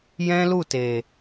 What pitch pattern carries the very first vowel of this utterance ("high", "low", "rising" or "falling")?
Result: high